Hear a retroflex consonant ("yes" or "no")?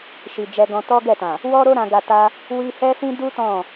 no